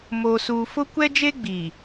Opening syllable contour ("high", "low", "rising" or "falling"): low